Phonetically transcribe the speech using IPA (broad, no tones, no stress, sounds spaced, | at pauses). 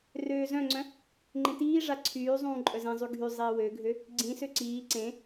r øː z œ̃ ŋ͡ǀ œ̃ | ŋ͡ǃ ẽ t iː ʐ a ǀʰ yː zˤ ũː ǃʼ œ z ẽ zˤ y ɡʱ y zˤ iː w ø ɡʱ ø | ɡ͡ǀ ĩ s ø ǀ iː ǀ ẽ